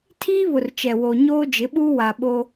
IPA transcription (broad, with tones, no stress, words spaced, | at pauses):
tʰiː˦βʊ˨r t͡ʃɛ˨ wo˨ɲoː˦d͡ʒɪ˨˦ɓuː˦ wa˨ ɓo˦